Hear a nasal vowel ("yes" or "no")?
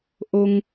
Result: no